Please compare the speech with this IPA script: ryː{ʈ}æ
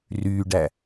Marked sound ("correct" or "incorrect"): incorrect